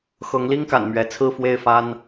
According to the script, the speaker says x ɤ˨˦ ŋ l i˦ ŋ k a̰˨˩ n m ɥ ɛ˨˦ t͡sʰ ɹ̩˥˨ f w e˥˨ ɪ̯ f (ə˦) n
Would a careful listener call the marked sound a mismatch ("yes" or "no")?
yes